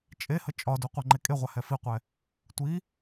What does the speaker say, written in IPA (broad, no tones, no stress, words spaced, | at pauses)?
t͡ʃʼehə t͡ʃʼɒdu qʷɛŋ͡ǃekʼeʁʷa hɛfiqʷɛ | tʷi